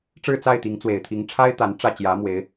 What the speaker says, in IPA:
ʈ͡ʂ ɻ̩˥˨ t͡s a˥˨ ɪ̯ t̪ i˨˦ ŋ t͡s w e˨˩ ɪ̯ t̪ʰ i˨˦ ŋ ʈ͡ʂʰ a˦ ɪ̯ t̪ a˨˦ n ʈ͡ʂ ä˥˨ t͡ɕ j ä˨˦ m w e˨˦ ɪ̯

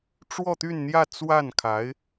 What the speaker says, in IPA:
ʈ͡ʂ w ɔ˥˧ t̪ y˥˧ n n̪ j ä˥˧ t͡s w a˥˩ n kʰ a˧˥ ɪ̯

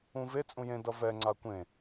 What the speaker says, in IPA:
ũ v e t͡sʼ ũ j ẽ d ʌ v ɛ ŋ͡ǀ a kʷ ẽ

